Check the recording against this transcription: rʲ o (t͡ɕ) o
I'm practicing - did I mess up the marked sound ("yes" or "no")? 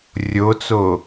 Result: yes